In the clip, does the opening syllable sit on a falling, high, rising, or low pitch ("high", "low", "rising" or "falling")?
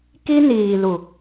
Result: high